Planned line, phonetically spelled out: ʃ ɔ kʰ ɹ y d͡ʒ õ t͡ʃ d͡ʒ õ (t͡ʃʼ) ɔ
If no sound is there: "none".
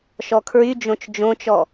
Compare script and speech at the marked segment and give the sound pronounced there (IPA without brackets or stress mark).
t͡ʃ